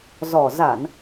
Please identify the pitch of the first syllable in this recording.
low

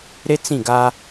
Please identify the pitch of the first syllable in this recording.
high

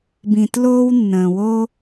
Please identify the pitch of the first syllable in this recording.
low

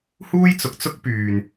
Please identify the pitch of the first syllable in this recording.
high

